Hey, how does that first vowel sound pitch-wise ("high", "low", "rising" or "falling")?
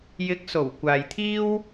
rising